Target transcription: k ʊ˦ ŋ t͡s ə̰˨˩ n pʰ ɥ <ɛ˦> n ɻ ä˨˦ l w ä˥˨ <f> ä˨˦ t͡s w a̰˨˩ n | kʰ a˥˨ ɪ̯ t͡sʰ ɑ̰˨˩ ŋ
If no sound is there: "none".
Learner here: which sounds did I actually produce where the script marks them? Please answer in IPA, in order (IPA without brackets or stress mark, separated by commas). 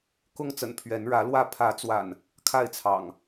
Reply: ɛ˨˦, pʰ